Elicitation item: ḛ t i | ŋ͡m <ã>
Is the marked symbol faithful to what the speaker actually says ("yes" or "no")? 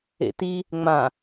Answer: yes